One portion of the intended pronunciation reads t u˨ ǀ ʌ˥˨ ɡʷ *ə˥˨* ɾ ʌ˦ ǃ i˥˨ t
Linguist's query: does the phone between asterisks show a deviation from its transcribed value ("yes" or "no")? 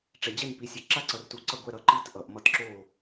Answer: yes